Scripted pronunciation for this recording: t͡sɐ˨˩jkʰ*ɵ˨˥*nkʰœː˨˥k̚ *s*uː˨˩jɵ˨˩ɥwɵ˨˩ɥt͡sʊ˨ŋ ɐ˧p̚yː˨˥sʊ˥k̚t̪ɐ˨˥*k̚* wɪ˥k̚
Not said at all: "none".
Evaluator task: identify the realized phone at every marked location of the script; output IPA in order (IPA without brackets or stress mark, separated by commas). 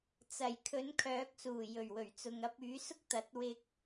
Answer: ɵ˨˥, s, t̚